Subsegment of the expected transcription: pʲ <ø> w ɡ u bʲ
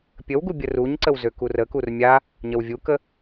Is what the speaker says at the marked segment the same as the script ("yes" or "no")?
no